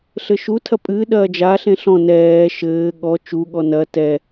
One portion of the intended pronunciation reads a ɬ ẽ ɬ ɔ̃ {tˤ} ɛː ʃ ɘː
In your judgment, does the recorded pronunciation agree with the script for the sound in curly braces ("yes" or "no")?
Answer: no